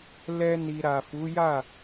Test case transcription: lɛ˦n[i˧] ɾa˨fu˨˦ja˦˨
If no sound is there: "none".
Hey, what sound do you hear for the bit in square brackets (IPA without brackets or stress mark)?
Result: i˧